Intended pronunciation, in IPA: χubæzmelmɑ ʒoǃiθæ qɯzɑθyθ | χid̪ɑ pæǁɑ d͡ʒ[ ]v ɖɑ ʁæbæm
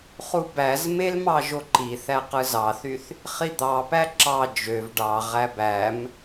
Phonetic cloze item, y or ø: ø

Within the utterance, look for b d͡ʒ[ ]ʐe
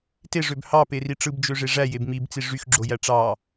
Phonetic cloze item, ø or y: ø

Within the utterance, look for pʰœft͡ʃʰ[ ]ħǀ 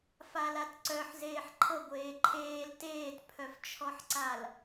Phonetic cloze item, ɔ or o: ɔ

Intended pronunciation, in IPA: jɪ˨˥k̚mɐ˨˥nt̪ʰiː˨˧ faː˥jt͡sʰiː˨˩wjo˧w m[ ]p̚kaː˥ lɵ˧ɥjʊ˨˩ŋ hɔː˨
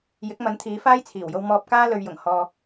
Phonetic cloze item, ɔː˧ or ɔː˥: ɔː˧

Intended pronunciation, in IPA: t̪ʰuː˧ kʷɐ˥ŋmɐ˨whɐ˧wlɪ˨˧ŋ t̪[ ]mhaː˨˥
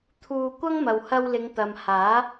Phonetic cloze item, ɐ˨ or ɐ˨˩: ɐ˨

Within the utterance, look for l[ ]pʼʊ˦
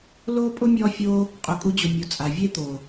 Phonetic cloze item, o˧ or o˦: o˦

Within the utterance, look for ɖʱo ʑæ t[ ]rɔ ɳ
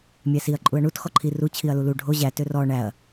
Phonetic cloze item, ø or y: ø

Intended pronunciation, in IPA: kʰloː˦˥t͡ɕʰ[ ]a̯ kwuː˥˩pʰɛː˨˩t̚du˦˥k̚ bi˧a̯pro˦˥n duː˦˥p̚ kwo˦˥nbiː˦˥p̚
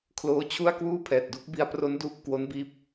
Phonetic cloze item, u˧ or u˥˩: u˥˩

